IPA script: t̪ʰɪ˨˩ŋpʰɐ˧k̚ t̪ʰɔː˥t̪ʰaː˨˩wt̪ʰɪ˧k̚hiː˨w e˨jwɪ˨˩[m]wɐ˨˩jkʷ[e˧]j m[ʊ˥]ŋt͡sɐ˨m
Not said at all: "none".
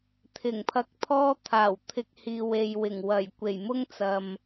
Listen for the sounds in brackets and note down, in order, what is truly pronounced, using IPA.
ŋ, e˨˩, ʊ˥

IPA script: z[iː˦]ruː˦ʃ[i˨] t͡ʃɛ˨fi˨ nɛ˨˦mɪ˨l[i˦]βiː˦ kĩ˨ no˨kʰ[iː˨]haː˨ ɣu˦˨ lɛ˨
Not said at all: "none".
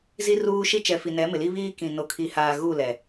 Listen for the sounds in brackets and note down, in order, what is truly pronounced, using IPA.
i˦, i˦, i˦, i˨

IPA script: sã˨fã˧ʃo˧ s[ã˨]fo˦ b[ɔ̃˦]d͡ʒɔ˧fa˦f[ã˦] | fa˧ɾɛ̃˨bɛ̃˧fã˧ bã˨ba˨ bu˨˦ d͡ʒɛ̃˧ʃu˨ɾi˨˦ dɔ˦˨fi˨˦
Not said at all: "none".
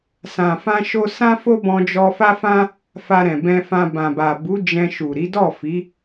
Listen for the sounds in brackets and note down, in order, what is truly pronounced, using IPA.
ã˦, ɔ̃˧, ã˦

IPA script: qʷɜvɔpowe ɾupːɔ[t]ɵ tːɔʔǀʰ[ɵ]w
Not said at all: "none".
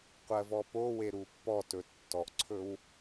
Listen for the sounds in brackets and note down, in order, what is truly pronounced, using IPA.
t, ɵ

